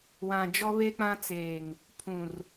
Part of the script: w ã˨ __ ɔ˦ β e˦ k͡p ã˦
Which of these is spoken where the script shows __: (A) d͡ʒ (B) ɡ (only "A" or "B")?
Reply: A